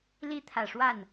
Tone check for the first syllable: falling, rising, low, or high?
high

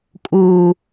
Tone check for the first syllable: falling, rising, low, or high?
low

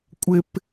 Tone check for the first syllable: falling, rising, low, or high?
high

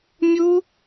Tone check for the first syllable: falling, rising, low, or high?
high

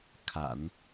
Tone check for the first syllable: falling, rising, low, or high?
low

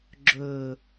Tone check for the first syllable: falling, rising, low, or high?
low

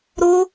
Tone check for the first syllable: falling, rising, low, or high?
high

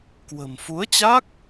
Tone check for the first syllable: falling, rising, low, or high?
low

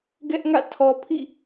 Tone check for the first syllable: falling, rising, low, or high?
high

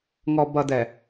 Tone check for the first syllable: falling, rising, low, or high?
low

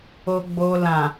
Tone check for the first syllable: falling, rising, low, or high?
low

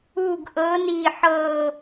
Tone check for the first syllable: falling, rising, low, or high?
falling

